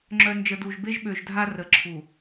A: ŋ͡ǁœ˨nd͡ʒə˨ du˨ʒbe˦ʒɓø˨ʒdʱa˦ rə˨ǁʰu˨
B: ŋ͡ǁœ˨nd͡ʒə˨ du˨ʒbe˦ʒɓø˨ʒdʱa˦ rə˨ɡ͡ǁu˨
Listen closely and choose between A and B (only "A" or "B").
A